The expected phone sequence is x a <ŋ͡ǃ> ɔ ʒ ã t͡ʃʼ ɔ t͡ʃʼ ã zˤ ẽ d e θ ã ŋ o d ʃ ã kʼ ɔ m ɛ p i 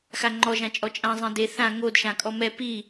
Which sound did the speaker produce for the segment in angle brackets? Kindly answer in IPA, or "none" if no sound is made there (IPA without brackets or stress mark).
ŋ͡ǃ